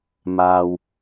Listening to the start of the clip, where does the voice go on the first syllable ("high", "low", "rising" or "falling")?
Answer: low